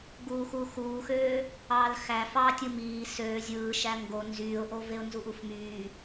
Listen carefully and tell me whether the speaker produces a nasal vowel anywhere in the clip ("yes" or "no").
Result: no